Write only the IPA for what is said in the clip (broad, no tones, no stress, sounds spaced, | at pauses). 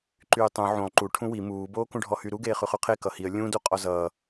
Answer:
ǃ yː tˤ ũ ʕ ũ lˠ ǃ u ʈʰ ũ w i m uː b oː k ũ ɖʱ ɔ h y ɾ u ɡ eː χ ʉ χ ʉ qʰ e k ʌ h i ə̯ lʲ ũ d u qʼ ɔ z ʌː